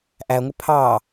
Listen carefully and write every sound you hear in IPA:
ʔæŋʷɪ pʰɑ

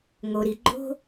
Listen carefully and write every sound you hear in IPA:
ŋo˩ɾi˩ ɡ͡ǃo̤˥

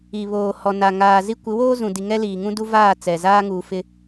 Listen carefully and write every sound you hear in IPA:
i˨βoː˨ hɔ˨ na˨ ŋaː˨zi˦ kʷɪ˨˦woː˦zũ˨di˨ ŋɛ˦liː˨ŋũ˦ du˦vaː˦˨ t͡sɛ˨ zaː˦ŋuː˨ fɪ˦

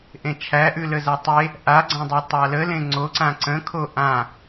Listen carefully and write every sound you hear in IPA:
ʔẽt͡ʃʰæʔʉ ləzætˤe | ʔaɡ͡ǀãdˤe tˤaləlẽ ŋ͡ǀoǀã ǀə̃ kʰoʔã

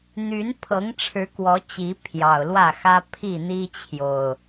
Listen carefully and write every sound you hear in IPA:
n̪y˨˦npʰɤ˨˦ŋʈ͡ʂʰɻ̩˨˦ kwɔ˨˦ t͡ɕi˨˦ pʰjɑ˨˩ʊ̯lwä˥˨xä˦ pʰi˥˨n̪i˦t͡ɕʰjo˨˩ʊ̯

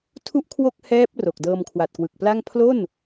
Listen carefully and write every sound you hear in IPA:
tʰu˥˩ʔkʰwo˥˩k̚ hɛː˦˥p̚ ro˨˩k̚dɤː˧m kʰwa˨˩t̚kwɯ˨˩k̚pla˥˩ŋ pʰlo˥˩n

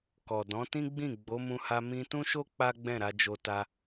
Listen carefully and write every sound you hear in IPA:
kɔ˨dɔ̃˨˦ tĩ˦ɡ͡bĩ˦˨ ɡ͡bo˨˦mũ˧ha˧ mĩ˧tũ˦ʃo˦ k͡pa˦ɡ͡bɛ̃˦˨ɾa˧d͡ʒo˧ ta˧

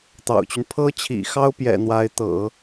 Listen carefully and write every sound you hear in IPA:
t̪ɑ̰˨˩ʊ̯t͡ɕy˦n pʰɤ˥t͡ɕʰḭ˨˩xɑ˥ʊ̯pjɛ̰˨˩ n̪wa˧˥ɪ̯t̪ɤ̰˨˩˦

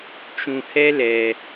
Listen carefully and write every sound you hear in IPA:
t͡ʃũ˧hɛ˦lɛ˧

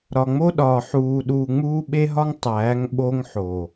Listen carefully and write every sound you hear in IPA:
ɾɒ˨ŋ͡mo˦ɗɒː˨ ħuː˨ ɗuː˨ŋ͡muː˦ɓe˦ɦɒ˦ŋ tˤæː˨˦ŋ ɓo˦ŋħo˨

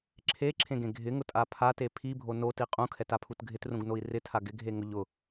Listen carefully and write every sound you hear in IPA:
ǁʰeǁʰẽɡẽ ɡʱɪŋʊtʼa pʰate pʰibʱo noti qʼũkʰɛtapʰut ɡʱɪtrũɡnoi̯ rɪtʰa ɡɪɡʱeŋʊ ʎʊ

